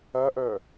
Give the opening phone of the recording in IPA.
ɐ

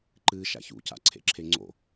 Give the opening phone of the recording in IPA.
ǃ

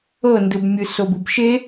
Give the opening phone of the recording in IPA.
ɤ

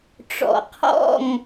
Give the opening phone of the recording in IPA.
ʈ͡ʂ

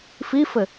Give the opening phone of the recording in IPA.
f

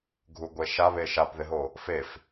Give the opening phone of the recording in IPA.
ɡʱ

